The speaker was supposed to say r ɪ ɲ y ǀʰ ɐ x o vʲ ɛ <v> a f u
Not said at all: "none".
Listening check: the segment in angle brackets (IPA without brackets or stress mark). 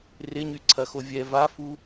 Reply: v